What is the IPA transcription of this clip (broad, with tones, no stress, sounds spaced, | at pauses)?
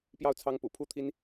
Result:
p j ɑ˥˨ ʊ̯ t͡sʰ ɑ˦ ŋ p ṵ˨˩ pʰ u˦ t̪ʰ i˦ n